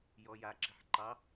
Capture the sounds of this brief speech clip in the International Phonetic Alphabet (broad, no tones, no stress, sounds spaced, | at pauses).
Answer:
j ɔ j a ǁ i̤ ħ ǃ ɑ